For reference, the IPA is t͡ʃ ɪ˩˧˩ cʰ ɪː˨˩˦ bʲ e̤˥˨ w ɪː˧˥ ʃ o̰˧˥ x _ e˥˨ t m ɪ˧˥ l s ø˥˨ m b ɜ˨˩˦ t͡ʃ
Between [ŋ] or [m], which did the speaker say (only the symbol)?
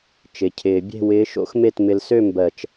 m